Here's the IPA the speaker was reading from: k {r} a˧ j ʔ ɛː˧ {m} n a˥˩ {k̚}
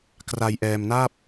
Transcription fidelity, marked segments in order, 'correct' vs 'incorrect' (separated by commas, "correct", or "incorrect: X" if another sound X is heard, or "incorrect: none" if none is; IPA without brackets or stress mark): correct, correct, incorrect: p̚